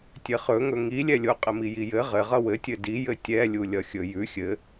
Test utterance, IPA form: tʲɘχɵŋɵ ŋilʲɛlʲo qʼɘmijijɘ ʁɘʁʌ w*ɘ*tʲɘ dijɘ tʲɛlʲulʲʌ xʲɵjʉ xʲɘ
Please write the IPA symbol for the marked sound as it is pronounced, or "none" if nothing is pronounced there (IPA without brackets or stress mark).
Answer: ɘ